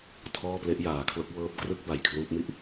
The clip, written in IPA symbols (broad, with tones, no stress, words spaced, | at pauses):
tʰɔː˥˩ple˦˥ʔ jaː˩˦kʰlo˦˥k̚wɤː˦˥p̚ krɯ˥˩k̚ba˨˩j kʰluː˦˥p̚mi˥˩ʔ